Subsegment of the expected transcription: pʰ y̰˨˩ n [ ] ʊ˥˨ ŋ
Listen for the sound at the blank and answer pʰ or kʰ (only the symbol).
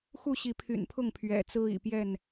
pʰ